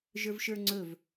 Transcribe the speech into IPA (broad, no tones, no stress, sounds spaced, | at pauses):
ʒ ə˞ v ʃ ə˞ ŋ͡ǀ ɵ v